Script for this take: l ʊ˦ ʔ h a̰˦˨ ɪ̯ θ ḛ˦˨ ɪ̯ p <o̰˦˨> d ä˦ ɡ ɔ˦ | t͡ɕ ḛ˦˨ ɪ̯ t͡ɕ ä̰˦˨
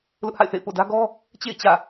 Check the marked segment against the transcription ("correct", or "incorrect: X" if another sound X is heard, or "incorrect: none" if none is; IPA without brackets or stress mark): correct